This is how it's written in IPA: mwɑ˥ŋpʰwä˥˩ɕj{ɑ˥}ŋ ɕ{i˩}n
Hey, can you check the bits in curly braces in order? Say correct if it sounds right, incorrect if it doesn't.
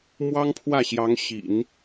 incorrect: ɑ˧˥, incorrect: ḭ˨˩˦

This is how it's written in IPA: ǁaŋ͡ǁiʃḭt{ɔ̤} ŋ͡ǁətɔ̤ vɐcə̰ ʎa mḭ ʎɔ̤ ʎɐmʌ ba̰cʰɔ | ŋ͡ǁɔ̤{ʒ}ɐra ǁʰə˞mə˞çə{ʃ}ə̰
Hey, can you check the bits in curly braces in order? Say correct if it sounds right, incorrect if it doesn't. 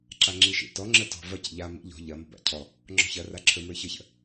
incorrect: ɔ, incorrect: ç, incorrect: ç

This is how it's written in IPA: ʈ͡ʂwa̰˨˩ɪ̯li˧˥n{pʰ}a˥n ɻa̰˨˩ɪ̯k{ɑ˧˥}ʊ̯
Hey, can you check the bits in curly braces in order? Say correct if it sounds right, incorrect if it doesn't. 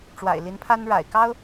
correct, incorrect: ɑ˥

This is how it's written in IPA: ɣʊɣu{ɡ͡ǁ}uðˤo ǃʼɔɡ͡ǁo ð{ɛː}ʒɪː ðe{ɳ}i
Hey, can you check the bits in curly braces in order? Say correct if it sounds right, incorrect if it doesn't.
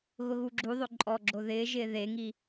correct, incorrect: ɪː, incorrect: ŋ

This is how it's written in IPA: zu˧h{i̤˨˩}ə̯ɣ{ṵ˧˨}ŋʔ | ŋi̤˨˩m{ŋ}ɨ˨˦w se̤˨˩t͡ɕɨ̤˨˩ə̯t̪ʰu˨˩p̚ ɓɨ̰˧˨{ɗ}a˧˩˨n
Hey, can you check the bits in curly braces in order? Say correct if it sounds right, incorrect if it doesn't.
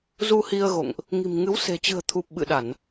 incorrect: i˧, incorrect: o̰˧˨, correct, correct

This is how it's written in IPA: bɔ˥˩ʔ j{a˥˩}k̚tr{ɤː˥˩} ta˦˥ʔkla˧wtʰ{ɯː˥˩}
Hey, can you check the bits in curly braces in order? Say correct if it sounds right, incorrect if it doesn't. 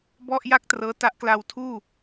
correct, incorrect: ɤː˦˥, incorrect: uː˥˩

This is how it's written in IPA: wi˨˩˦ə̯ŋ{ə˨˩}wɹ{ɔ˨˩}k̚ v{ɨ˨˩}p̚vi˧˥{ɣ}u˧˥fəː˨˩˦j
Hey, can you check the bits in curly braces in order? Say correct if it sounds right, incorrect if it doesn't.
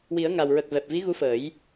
incorrect: a˨˩, incorrect: ə˨˩, incorrect: ɛ˨˩, correct

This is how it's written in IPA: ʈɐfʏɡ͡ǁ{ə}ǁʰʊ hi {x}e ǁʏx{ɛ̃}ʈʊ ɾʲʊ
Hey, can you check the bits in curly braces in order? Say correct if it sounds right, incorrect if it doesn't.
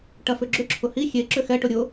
incorrect: ʏ, incorrect: xʲ, incorrect: ɛ

